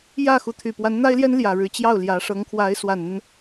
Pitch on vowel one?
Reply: falling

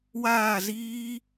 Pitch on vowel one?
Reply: falling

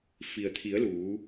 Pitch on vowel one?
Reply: low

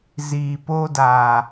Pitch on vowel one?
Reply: low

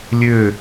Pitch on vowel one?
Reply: falling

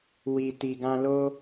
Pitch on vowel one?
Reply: low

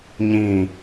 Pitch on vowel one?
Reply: falling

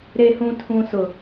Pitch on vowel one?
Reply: low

